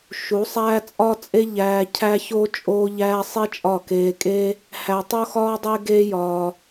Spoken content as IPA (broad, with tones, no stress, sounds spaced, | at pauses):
ʃ u˨˦ sˤ æː˦ t͡sʼ ɒ˦ t͡sʼ e˦ ʎ æː˧ cʰ æ˦ ç o˦ t͡ʃʼ oː˦ ʎ æː˦ sˤ i˦ t͡ʃʼ ɒ˦˨ k eː˧ kʼ e˦ | h æ˧ tˤ o˦ x ɒː˦ dˤ e˦ ɡ eː˦ j ɒː˧